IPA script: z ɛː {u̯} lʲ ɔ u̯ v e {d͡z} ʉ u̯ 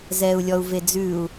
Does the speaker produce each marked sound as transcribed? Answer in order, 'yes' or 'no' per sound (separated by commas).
yes, yes